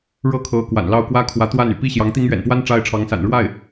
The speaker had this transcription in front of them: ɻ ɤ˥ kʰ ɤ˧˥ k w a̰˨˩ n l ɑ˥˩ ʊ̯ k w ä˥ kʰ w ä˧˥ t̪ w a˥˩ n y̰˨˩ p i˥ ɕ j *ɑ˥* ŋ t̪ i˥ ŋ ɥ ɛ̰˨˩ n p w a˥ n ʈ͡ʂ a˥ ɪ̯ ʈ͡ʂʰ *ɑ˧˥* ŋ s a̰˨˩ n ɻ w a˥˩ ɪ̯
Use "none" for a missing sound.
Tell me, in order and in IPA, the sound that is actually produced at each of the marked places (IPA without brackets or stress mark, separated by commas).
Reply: ɑ˧˥, ɑ˧˥